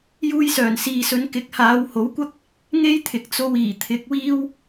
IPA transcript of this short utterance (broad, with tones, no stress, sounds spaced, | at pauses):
j uː˧ j s œː˨˩ n s iː˨ s ɵ˨˧ n k ɪ˨˥ k̚ h aː˨˧ w h o˨˥ w kʷ ɐ˥ k̚ | ŋ e˥ j t̪ʰ ɪ˨ k̚ t͡s o˧ w iː˨˩ t̪ʰ ɪ˨˥ k̚ w iː˥ w